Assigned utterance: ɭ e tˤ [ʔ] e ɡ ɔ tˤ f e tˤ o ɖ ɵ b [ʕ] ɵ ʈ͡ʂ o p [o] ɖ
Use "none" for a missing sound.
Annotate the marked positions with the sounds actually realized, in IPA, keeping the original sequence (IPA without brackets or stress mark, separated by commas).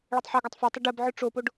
ħ, ʕ, o